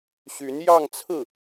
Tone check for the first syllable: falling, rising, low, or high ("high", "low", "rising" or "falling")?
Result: rising